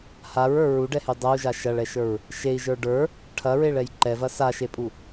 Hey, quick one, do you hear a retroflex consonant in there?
yes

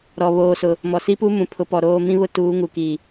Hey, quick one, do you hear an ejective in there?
no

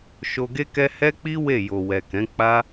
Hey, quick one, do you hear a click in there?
no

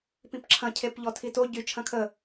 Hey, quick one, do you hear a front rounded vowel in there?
yes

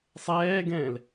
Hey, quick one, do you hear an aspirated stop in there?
no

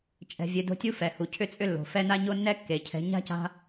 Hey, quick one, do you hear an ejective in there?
yes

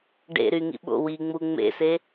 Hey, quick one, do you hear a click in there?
no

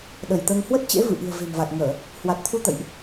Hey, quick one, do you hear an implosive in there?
yes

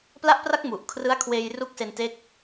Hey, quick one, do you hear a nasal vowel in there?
no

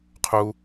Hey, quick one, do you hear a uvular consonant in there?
yes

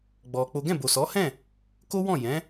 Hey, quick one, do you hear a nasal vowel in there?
yes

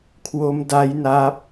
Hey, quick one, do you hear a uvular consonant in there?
no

